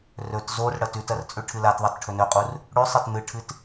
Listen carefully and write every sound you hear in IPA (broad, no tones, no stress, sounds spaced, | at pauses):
r ɵ t z o r ɽ ɐ t ʉ t ɐ r t͡sʼ ʉ ʈʰ ɨ l a t ðˤ i t ʈʰ ɵ n ɵ qʼ u r | ɽ ʉ sˤ e t n̪ ɨ ʈʰ ɨ t